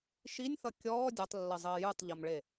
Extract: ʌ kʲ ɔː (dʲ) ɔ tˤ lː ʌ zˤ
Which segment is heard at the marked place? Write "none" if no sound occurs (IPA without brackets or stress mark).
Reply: dʲ